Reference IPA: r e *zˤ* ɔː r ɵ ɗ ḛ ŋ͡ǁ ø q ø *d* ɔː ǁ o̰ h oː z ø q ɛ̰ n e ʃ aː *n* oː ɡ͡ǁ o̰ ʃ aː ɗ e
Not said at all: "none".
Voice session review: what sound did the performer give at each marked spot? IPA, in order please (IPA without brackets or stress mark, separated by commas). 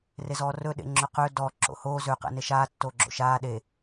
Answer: z, d, tː